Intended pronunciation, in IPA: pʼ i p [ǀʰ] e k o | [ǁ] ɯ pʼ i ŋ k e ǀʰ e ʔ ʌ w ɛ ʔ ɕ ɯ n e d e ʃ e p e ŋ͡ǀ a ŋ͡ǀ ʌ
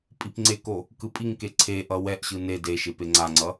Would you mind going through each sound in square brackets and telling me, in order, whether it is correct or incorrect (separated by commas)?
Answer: incorrect, incorrect